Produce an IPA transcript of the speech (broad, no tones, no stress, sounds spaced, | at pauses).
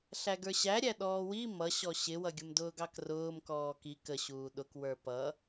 ɬ æ ɡ ə˞ ɕ æ ɾʲ æ ɗ ɔː w i m ʌ ɕ ɔ ɕ ɪ w ʌ ɡʲ ʊ m d ʊː ɡ ɑ k r ʊː m k ɔː k i k ə ɕ uː ɗ ʊ k w ə˞ p ʌ